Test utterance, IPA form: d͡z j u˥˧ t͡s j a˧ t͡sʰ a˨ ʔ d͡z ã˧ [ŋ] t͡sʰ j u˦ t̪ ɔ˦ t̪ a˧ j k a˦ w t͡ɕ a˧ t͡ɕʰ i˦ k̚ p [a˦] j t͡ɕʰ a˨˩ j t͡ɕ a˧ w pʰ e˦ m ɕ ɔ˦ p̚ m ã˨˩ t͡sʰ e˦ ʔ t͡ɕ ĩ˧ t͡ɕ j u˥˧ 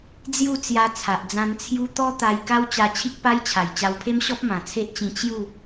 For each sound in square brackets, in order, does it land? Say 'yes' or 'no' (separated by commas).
no, yes